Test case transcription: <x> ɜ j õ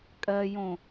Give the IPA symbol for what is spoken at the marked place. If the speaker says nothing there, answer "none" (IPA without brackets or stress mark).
kʼ